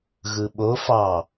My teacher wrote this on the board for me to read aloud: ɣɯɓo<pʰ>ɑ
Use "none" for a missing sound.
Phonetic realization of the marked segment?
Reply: f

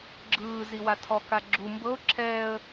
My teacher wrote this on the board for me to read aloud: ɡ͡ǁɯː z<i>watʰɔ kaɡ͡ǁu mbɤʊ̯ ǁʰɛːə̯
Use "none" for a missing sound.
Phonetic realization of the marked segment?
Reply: i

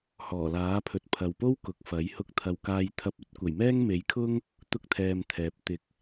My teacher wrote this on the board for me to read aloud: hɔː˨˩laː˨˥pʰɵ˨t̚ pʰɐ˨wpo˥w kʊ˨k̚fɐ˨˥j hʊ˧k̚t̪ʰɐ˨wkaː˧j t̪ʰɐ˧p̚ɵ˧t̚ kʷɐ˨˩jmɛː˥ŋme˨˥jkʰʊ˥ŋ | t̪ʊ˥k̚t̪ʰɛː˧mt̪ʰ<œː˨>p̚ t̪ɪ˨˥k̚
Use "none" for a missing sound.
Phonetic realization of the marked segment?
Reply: ɛː˨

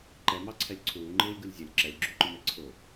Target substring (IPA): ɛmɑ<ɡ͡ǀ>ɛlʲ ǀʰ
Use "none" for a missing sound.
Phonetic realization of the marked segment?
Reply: ǀʰ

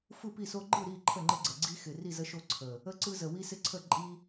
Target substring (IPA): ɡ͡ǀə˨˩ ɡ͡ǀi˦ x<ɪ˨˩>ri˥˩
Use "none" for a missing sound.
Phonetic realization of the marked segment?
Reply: ɪ˨˩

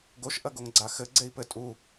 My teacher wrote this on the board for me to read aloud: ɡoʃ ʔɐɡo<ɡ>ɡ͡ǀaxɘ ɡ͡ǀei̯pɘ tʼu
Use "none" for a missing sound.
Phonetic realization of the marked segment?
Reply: ŋ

